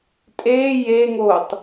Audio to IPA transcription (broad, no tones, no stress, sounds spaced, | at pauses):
tʼ eː j e ŋ oː tˤ